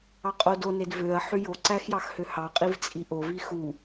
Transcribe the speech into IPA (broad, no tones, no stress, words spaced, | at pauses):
ɑqʼodo nedvøɐ̯ ħyjo ǀæxjɑxhøhɑ qʼivt͡sʼiʔo vixu